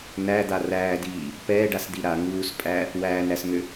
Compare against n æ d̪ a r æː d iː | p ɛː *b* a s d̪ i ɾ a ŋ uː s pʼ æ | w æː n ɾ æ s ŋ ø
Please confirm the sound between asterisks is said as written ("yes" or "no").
no